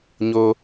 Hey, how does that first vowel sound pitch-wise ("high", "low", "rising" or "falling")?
low